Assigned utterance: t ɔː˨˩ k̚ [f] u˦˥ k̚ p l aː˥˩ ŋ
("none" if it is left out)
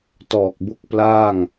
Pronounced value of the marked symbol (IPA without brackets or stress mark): b